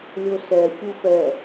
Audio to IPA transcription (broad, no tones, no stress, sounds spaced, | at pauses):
lʲ o s ɛ xʲ u f ɛ